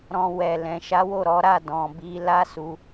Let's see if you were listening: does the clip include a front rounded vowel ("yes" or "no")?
no